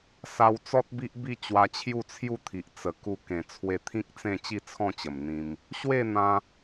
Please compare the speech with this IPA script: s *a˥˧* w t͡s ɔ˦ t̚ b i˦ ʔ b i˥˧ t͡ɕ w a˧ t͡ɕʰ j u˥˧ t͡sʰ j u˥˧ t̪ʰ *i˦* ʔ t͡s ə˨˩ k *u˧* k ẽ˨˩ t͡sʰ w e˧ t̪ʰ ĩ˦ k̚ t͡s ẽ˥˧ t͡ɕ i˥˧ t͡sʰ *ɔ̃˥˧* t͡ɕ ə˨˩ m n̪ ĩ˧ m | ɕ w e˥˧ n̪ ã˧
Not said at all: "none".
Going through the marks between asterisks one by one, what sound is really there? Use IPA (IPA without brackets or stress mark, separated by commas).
a˧, i˨, u˧, ɔ̃˥˧